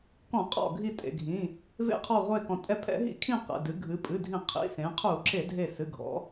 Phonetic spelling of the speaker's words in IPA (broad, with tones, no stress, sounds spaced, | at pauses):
k ɔ̃˧˩˧ qʼ ɔ̰˧˩ ɡʱ i˧˩ tʼ ḛ˩ ɡʱ ĩ˩˧˩ | v ḛ˧˩˧ qʰ ɔ˧˩ ʁʷ e˧˩ k ɔ̃˩ tʼ ɛ˧˩ pʰ ɛ̰˧˩˧ ɦ ḭ˧˩˧ kʰ ĩ˧˩ q ɛ̰˩˧˩ d ɨ˩˧ ɡʱ ɨ˩˧ pʼ ɨ˩˧˩ dʱ ĩ˧˩˧ qʰ ḭ˩˧˩ s ẽ˩˧ qʰ u˧˩˧ ǁ e˧˩˧ dʱ e˧˩ s ɨ˩˧˩ ɡʱ ɔ̰˩˧